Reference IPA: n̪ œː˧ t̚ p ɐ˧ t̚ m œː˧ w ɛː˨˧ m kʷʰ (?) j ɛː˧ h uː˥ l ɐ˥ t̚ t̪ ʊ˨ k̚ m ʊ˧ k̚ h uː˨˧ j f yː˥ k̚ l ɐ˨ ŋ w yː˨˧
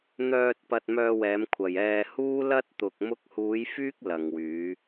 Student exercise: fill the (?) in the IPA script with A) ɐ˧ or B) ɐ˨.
B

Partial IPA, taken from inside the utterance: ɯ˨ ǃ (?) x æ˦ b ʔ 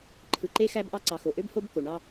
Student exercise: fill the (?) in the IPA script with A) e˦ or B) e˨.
A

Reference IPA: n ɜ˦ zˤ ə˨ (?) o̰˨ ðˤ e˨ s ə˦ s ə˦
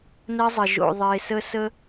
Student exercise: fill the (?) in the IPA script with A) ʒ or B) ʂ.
A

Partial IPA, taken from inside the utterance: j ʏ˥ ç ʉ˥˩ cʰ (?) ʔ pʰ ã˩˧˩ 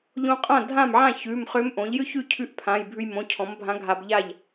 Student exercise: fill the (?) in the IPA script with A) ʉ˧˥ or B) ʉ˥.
A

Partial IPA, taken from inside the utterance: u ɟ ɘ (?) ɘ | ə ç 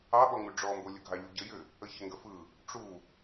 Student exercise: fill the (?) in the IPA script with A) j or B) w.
A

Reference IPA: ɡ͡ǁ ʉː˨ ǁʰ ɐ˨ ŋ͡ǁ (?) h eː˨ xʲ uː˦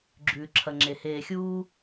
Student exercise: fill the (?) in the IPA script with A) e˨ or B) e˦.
A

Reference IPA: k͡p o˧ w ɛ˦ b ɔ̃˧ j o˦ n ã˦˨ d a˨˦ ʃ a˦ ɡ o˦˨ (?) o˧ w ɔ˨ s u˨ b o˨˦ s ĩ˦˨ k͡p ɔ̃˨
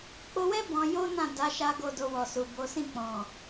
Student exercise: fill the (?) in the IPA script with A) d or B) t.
A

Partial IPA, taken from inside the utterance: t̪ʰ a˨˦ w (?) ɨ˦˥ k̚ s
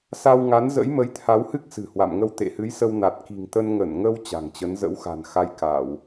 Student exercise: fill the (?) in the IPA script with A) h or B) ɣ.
A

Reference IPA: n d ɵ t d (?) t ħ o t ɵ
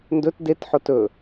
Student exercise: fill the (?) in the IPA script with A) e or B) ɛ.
A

